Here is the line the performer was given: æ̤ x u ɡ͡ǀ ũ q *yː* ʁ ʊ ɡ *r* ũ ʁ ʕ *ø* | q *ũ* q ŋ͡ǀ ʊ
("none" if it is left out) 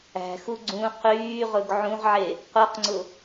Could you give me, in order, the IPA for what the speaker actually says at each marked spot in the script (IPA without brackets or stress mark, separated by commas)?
yː, ʕ, e, u